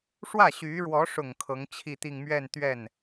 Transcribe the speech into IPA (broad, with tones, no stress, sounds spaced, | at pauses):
ʂ w ä˥˩ ɕ y˧˥ ɻ w ɔ˧˥ ʂ ʊ˨˩ ŋ kʰ ɤ˧˥ ŋ t͡ɕʰ i˥˧ t̪ i˥˧ ŋ m ɥ ɛ˥˧ n t̪ ɥ ɛ˥˩ n